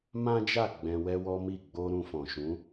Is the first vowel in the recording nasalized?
yes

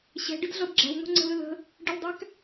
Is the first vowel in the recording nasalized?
no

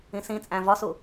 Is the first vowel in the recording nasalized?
yes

